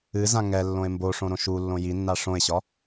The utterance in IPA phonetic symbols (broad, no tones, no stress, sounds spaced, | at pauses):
ɨ z ã ŋ ɛ lː õ e̯ m b o ʂ õ ɾ õ ʃ u lː õ j i nː a ʂ õ e̯ ɕ ɒ